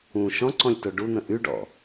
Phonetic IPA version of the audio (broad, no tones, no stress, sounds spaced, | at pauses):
ũ ʃ ɔ̃ ǀ ɔ̃ lʲ t o ɖ u n̪ ə̃ ʔ y ɖ ɔ̰